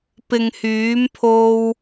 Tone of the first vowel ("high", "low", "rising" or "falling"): low